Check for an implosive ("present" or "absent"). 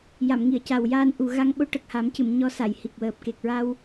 present